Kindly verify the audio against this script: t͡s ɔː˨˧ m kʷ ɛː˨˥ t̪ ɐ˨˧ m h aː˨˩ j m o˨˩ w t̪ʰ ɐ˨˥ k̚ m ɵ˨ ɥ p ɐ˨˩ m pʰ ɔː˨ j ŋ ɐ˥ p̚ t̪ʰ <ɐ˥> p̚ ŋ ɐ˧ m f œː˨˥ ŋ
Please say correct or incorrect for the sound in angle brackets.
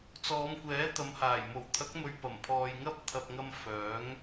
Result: incorrect